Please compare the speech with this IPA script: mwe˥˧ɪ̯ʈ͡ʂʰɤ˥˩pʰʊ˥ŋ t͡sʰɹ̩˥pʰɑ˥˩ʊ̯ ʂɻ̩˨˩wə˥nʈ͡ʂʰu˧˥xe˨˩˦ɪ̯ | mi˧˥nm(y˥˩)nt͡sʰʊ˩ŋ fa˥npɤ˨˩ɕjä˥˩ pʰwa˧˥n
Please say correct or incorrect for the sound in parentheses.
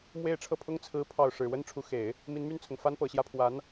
correct